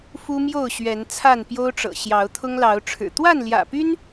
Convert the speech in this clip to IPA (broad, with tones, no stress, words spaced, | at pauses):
fu˦mjo˥˨ʊ̯ɕɥɛ˨˦n t͡sʰa˥˨npjo˦ʊ̯ʈ͡ʂɤ̰˨˩ ɕjɑ˨˦ʊ̯t̪ʰʊ˦ŋlɑ˨˦ʊ̯ʈ͡ʂʰɻ̩˨˩ t̪wa˥˨nljä̰˨˩py˦n